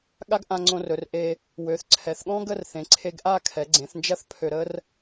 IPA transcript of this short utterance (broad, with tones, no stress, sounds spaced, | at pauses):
ɠ a˥ ɡ ʔ ã˧ ŋ͡ǀ õ˧ r ɵ˩˧ r ʔ e˧ | w ø˩˧ θ ǀʰ ɛ˩˧ θ ɠ ɔ̃˥ ɡ ə˥˧ r θ ẽ˩˧ ǀʰ e˧ ɡ ʔ a˥˧ kʰ ɛ˩˧ ɡ͡ǀ ẽ˩˧ θ n d͡ʒ ɐ˥ θ pʰ ø˧ ɾ ə˥ r